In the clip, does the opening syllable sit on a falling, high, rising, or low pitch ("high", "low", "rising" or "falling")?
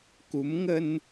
rising